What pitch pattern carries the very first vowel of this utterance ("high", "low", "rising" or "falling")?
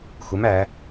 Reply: rising